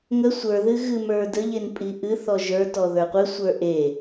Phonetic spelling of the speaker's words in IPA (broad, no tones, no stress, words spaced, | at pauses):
ŋə sʷə˞ðɨ ɣɨmə˞dəʎen pʼiʔɨθɔ ʒə˞tɔ ðə˞qʷɨsʷə˞ ʔe